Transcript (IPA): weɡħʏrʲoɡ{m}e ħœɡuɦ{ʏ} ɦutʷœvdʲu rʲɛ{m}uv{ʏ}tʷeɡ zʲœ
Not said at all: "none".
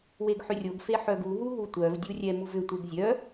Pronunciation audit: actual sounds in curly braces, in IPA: f, u, m, ʏ

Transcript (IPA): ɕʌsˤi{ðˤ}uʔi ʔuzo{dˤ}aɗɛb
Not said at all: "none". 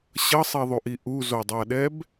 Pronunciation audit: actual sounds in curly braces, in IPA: ðˤ, dˤ

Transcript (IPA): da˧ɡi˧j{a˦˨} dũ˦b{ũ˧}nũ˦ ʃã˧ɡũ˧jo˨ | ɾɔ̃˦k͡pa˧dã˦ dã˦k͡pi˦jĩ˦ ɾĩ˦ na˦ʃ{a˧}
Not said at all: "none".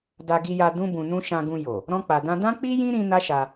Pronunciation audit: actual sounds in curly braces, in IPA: a˧, ũ˧, a˧

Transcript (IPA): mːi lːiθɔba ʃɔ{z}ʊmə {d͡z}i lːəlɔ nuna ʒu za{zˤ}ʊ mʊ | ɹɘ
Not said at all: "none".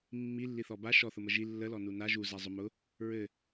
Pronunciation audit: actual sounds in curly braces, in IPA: θ, ʒ, zˤ

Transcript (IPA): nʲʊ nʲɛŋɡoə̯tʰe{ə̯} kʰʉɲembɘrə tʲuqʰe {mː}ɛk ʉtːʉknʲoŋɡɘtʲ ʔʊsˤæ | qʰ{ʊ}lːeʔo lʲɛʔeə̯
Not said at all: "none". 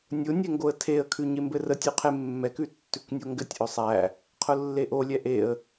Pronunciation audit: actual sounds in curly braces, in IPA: ə̯, mː, ʊ

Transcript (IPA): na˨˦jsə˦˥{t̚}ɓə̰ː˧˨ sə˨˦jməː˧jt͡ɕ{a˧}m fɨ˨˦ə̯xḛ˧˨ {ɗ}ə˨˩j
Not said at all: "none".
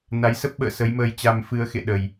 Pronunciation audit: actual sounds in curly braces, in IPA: p̚, a˧, ɗ

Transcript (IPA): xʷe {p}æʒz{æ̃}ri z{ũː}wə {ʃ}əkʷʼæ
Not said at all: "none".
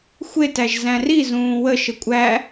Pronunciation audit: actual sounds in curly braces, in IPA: t, æ̃, ũː, ʃ

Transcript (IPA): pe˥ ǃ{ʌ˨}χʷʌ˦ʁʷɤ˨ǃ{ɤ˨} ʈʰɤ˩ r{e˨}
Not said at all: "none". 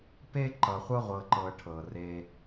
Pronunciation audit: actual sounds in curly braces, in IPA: ʌ˨, ɤ˨, e˨

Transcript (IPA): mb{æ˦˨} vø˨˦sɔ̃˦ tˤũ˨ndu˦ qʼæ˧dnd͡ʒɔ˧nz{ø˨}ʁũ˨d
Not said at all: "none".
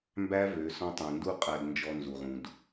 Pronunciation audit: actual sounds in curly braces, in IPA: æ˦, u˨

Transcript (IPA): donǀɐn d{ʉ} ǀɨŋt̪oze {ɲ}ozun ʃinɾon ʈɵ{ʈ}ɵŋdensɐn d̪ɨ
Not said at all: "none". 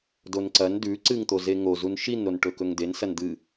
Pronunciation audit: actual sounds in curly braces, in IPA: ʉ, ŋ, k

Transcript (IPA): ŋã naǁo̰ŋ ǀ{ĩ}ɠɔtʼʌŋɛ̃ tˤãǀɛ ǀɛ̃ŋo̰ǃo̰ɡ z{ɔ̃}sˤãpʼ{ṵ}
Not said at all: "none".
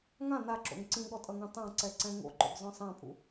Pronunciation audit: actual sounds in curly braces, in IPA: ĩ, ɔ̃, ṵ

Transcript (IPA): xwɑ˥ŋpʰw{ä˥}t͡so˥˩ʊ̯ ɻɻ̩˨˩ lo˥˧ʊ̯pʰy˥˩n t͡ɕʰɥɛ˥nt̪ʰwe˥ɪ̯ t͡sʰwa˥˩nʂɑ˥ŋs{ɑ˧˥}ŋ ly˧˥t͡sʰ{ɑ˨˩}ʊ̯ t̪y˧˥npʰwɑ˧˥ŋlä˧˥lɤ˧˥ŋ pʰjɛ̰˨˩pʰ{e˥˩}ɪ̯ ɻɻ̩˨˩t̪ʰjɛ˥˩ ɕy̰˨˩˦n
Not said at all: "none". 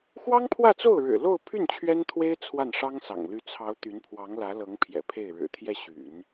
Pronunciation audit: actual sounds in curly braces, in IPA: ä˥˧, ɑ̰˨˩, ɑ˧˥, e˥˩

